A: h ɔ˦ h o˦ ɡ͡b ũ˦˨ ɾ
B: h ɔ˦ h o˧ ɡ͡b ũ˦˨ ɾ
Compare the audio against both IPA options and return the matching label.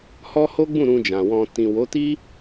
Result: A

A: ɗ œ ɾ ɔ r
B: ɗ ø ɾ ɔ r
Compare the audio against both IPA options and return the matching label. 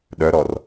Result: A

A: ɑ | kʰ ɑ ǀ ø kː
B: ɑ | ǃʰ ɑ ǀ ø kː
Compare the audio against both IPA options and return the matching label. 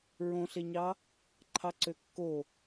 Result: B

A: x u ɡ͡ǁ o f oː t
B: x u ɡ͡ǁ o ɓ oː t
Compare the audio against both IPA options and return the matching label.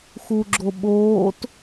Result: B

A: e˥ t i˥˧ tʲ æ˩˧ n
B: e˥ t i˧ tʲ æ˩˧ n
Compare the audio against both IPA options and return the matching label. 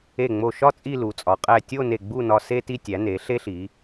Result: B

